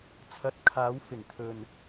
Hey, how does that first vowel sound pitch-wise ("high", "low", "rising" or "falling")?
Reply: rising